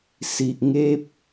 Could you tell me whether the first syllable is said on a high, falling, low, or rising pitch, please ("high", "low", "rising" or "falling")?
low